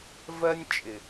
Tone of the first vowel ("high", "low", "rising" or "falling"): high